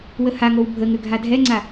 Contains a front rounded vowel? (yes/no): yes